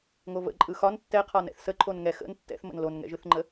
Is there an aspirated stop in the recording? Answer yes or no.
yes